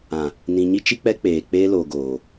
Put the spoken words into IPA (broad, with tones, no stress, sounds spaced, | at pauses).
ã˨ | n ĩ˨ ɲ i˦ t͡ʃ i˦ k͡p ɛ˦ k͡p eː˨ k͡p eː˦ l o˨ ɡ oː˨